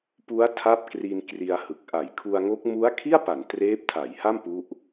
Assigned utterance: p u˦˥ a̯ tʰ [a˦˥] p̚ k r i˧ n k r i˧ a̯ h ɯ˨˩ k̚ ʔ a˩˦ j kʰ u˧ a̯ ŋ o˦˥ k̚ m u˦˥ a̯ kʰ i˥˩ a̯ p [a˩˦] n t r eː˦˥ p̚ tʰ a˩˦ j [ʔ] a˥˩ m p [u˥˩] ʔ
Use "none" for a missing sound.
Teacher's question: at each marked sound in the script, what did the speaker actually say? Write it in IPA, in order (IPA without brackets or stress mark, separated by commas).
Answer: a˦˥, a˩˦, h, u˦˥